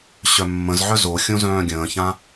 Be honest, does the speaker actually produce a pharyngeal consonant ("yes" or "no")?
yes